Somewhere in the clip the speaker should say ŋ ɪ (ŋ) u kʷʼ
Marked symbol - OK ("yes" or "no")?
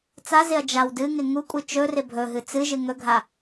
yes